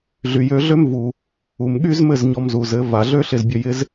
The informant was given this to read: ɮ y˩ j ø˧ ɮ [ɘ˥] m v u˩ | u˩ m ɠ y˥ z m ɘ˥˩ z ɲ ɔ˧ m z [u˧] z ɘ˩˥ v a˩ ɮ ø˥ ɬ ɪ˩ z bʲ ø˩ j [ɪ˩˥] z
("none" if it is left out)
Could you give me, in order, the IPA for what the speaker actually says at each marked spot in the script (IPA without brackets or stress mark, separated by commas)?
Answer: ø˥, u˩, ɪ˩˥